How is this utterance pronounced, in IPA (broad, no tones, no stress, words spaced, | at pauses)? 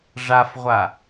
ʐafʁʷa